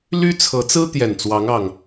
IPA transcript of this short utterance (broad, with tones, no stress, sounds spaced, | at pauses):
l y˦ t͡sʰ ɤ˨˦ t͡s ɹ̩˦ t̪ j ɛ˨˩ n t͡s w ɑ˨˦ ŋ ɑ˨˩ ŋ